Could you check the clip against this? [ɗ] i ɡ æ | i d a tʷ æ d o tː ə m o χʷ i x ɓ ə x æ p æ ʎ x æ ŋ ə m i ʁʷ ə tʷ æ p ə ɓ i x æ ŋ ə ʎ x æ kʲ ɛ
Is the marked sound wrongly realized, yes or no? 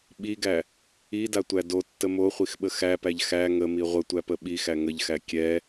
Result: yes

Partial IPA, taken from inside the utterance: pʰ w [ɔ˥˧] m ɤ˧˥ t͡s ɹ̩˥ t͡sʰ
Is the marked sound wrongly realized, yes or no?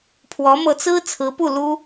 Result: yes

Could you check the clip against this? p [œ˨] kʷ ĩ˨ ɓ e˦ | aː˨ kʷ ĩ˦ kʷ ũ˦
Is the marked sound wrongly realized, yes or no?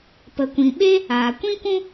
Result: yes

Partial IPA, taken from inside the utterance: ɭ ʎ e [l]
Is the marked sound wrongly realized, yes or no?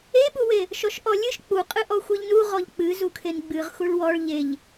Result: yes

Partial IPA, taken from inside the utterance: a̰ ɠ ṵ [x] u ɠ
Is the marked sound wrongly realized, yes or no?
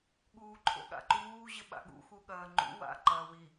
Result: no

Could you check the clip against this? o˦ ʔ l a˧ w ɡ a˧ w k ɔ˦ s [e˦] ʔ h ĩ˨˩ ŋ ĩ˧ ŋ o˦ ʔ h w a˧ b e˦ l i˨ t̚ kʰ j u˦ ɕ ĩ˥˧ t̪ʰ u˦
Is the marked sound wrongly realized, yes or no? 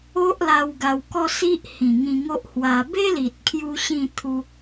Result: yes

